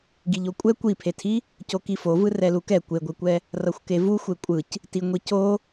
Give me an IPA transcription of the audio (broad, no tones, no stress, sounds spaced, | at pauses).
ɡ i ʎ o kʷʼ ɛ kʷ i pʰ e tʰ i | c o k i f o v ɯ r ɛ l u k ɛ kʷ e ɡʷ e kʷ ɛ | r ʌ xʷ k e v u xʷ e kʷʼ ɯ c | t i ŋʷ i c o